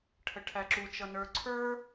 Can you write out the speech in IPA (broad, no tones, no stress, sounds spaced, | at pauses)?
ʈʰ ə ʈʰ æ ǁ u t͡ʃ ʌ n ə˞ ǀʰ ə˞